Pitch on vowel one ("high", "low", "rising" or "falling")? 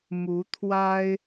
rising